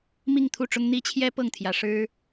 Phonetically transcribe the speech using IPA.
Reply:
m i˥˨ ŋ t̪ʰ u˥˨ ʈ͡ʂ ʊ˦ ŋ n̪ i˦ t͡ɕʰ j ɛ˦ p ɤ˥˨ ŋ t̪ʰ j ä˨˦ ʂ ɻ̩˦

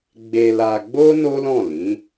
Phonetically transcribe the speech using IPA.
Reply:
ɡ͡b e˧ l a˧ ɡ͡b o˦ n o˦ l ɔ̃˦˨ l ĩ˨˦

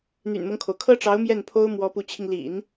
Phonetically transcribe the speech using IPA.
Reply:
n̪ y̰˨˩ n m ɤ˦ ŋ kʰ o˩ ʊ̯ kʰ ɤ˥ ʈ͡ʂ ɑ˧˥ ʊ̯ m j ɛ˥˩ n pʰ o˥ ʊ̯ m w ɔ˧˥ p u˧˥ t͡ɕʰ i˧ ŋ l ḭ˨˩˦ n

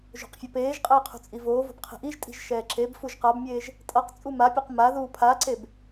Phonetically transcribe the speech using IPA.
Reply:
ʒ o̤ q fʲ ʌ p eː ʒ qʼ ɛː qʰ ṳ t͡sʼ i v oː v o̤ b qʰ i̤ ʔ i ʒ tʼ i̤ ʒ ʃ ɛː ǁ e b f u ʒ q a b mʲ eː ʒ | tʼ ʌ q t͡sʼ u m a pʲ o q m a ð uː pʰ a ǀ e b

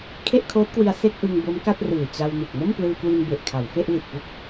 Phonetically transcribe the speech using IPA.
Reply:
kʰ e˥˩ ʔ kʰ oː˦˥ t̚ k w i˧ a̯ s e˥˩ k̚ ʔ ɯ˧ ŋ b o˦˥ m k a˥˩ t̚ r ɯː˨˩ t͡ɕ a˧ w n u˨˩ k̚ m o˥˩ m p l ɯː˧ k w i˧ n b e˨˩ ʔ kʰ a˩˦ w f e˥˩ ʔ l i˨˩ t̚ p u˥˩ k̚

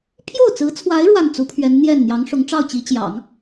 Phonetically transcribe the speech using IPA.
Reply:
pʰ j o˥˩ ʊ̯ t͡s ɹ̩˧˥ t͡sʰ w a˧˥ ɪ̯ ɻ w a˥˩ n t͡s u˧˥ pʰ ɥ ɛ˧˥ n n̪ j ɛ˥˩ n n̪ j ɑ˧˥ ŋ ʂ ʊ˧˥ ŋ ʈ͡ʂ ɑ˥˩ ʊ̯ t͡ɕ i˧˥ t͡ɕ j ɑ̰˨˩˦ ŋ

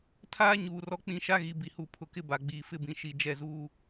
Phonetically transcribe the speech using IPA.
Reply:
tʰ aː˦ ɲ uː˨ r ɔ˦ k͡p ĩ˦ ʃ a˦ ɣ i˨ b i˨ h u˨ pʰ ʊ˨ k ɪ˦ b a˨ ɡ͡b iː˨ f ɪ˦ b ĩ˨ ʃ i˨ d͡ʒ ɛ˦˨ z uː˦

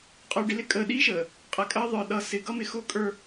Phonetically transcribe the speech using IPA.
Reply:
qʼ ə˞˨ ɖ ɪ˨ l ɪ˦ kʼ əː˨ ɗ iː˦ ʃ əː˨ | qʼ æ˨ kʼ əː˦ ðˤ ə˞˨ ɗ ʌː˨ s ɪ˨ ɡ ʌ˦ m ɪ˨ x ʊː˦ kʼ ə˞˦

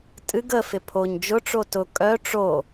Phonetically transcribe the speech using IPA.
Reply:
tʼ ɨ ɡ ə f ɪ pʰ o ɲ d͡ʒ ʊ ʈ͡ʂ o t ʊ kʼ œ ʈ͡ʂ o

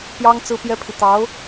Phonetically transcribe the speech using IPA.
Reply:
p j ɑ˥ ŋ t͡s ɹ̩˥ p j ɛ˥ pʰ i˨ t̪ ɑ˧˥ ʊ̯

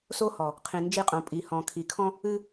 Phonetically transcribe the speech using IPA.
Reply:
s o˦ h ɔ˨ | qʰ ĩ˨ n d͡ʒ i˦˨ qʼ õ˨ pʼ i˨ h ɔ̃˨ kʰ i˨ kʰ ɔ̃˦ | ɨ˦

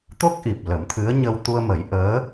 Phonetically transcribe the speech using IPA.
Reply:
t̪ o˦˥ k̚ ʔ i˨˩ p̚ l ə˨˩˦ m t̪ʰ ɨ˧˥ ə̯ ɲ ə˧ w t̪ u˧ ə̯ m ə˨˩˦ j ʔ əː˧˥

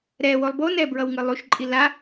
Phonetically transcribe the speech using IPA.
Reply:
ɾ ɛ w o lˠ b o n ɛ b ɹ ʌ w ŋ ɯ lˠ u ʃ ǃʼ i l a

